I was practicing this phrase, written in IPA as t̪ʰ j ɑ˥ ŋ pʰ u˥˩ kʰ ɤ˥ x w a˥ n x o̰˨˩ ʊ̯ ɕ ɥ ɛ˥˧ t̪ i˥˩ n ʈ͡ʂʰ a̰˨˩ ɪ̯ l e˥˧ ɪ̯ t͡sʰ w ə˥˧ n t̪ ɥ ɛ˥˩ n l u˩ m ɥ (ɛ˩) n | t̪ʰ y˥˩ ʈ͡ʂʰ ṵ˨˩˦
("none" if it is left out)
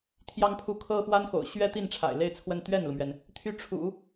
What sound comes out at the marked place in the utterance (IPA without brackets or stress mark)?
ɛ˩